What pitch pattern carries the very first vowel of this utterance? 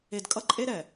low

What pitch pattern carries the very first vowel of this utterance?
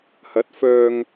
rising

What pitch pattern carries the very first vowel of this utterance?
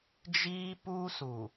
high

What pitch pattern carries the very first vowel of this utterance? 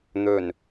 low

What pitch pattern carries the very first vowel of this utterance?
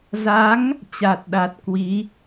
rising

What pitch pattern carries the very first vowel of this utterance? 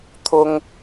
high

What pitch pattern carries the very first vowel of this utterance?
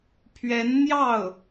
rising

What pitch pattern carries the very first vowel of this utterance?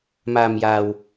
low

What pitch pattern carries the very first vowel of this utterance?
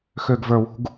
low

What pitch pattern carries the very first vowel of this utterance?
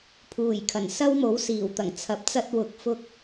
low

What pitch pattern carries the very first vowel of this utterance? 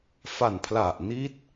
low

